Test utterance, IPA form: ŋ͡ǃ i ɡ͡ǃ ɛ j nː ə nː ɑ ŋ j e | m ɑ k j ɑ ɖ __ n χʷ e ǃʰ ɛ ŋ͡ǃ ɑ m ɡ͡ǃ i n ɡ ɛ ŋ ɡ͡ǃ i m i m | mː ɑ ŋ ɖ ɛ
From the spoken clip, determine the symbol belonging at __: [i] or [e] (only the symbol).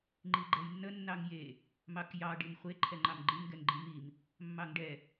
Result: i